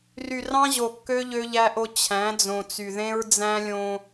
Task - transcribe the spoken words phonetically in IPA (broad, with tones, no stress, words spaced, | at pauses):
ry˨rɑ̃˦ʑo˨kːø˦ ʎø˦ʎæ˦ʔo˦ t͡ɕʰæ̃˨˦d͡zõ˨t͡sy˨ ðẽ˦ɹd͡zæ̃˦lʲõ˦